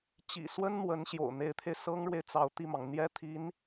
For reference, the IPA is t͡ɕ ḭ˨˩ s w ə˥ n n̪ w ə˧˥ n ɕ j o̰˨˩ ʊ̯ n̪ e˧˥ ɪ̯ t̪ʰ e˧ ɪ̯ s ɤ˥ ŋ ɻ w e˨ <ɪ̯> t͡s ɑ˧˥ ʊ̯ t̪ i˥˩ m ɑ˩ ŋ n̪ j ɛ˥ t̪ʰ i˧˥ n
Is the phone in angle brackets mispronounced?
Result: no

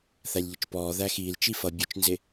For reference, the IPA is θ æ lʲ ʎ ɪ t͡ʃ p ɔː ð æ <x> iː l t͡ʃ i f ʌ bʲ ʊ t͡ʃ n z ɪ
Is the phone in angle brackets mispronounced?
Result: no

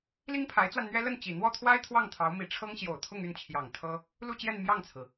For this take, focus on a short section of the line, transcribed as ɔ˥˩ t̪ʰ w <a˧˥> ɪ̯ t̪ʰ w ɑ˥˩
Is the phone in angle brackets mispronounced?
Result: yes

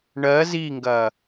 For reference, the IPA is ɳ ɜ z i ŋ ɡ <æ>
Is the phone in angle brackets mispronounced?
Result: yes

